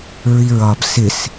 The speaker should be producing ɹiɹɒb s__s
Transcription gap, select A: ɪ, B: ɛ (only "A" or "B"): A